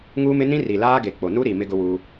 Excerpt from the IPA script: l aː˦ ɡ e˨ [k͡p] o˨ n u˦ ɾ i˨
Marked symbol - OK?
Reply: yes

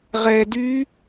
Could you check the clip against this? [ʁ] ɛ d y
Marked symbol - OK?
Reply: yes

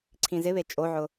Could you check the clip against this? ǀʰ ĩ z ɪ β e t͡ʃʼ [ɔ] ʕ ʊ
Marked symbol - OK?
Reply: no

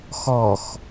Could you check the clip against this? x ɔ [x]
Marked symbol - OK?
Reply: yes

